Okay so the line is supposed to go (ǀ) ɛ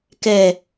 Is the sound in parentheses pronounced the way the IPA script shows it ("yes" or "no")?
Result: no